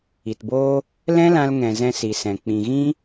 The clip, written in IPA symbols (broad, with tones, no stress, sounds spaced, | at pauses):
i˨ t b oː˦ | l ɛ̃˦ l ã˧ l ŋ ɛ̃˨ z ɛ̃˧ s i˨ s ɛ̃˨ k͡p ĩ˨ ɣ ĩ˦